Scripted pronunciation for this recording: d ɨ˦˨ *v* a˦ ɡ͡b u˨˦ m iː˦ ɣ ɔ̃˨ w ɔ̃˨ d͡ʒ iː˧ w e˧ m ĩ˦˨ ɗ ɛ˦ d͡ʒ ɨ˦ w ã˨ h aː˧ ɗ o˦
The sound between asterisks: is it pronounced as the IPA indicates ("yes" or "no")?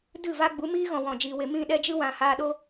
yes